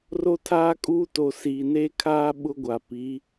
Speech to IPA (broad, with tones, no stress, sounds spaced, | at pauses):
r o˦ tʰ aː˦ kʼ uː˦ t o˨ s iː˨ n eː˦ kʰ aː˦ ɓ ʊ˦ ɡʷ a˨ p i˨˦